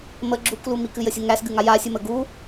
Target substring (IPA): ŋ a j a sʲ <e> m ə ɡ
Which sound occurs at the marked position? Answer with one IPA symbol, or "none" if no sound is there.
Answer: ɨ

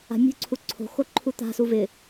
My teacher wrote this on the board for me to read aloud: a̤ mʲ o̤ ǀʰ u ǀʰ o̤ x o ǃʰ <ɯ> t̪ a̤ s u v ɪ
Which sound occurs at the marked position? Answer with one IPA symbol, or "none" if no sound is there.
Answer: u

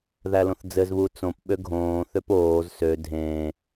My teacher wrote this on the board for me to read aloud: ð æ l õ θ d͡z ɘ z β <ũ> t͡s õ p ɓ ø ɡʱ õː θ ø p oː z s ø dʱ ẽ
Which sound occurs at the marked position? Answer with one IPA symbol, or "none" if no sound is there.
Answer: u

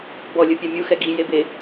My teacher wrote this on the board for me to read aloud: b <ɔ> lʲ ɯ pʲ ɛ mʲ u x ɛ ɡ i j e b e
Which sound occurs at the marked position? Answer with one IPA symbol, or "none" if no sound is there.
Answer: ɔ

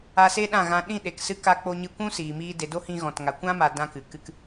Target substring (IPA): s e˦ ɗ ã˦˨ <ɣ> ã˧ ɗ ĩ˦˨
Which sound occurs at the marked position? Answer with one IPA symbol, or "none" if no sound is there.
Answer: ɣ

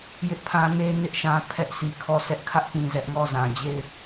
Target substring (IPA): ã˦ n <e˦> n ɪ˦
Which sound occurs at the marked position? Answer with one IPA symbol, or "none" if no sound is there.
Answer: e˦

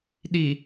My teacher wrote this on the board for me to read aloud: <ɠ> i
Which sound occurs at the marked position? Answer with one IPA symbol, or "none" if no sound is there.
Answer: ɗ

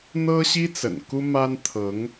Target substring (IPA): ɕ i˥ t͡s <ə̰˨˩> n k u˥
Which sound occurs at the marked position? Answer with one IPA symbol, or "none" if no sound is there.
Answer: ə̰˨˩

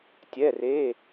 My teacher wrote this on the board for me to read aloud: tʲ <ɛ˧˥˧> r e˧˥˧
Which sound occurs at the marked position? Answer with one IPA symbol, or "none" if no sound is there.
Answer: ɛ˧˥˧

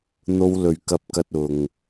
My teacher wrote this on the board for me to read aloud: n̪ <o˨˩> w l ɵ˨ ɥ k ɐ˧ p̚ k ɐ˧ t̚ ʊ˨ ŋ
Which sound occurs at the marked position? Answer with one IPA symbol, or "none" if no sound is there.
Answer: o˧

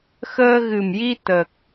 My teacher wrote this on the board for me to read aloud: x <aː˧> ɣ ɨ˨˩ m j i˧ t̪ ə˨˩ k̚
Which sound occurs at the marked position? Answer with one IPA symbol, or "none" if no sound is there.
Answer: əː˧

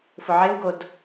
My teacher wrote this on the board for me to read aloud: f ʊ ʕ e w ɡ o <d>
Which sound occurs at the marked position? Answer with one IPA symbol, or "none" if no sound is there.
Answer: d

